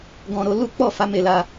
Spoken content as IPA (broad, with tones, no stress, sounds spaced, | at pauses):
ɡ ɔ̃˧ ɾ o˧ l u˦ k͡p ɔ˦˨ f a˨˦ m e˧ l a˧